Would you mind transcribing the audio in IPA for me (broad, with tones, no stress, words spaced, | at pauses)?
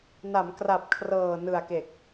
na˩˦m kra˨˩p̚ kʰrɤː˨˩ nɯ˨˩a̯ke˨˩k̚